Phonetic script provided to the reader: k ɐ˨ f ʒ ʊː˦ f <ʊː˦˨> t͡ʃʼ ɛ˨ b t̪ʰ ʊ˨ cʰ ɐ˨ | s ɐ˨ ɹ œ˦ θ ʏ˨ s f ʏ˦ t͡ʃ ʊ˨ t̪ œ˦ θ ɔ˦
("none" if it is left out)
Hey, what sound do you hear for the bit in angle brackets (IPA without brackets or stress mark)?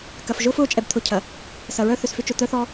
ʊː˦˨